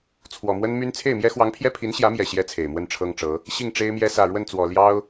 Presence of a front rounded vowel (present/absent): present